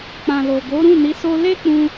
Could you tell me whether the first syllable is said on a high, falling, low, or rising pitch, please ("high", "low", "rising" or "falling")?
low